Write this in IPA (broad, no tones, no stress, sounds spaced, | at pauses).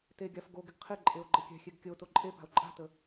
t e ɡʲ a f ɡ o ɡ ɪ ɡ qʰ ɪ ǃʼ e o̯ ɡ͡ǃ ə kʲ ɛ̤ xʲ e ɡ kʲ ə o̯ t o ǃʼ e p a̤ o̯ ǃʼ a̤ t ə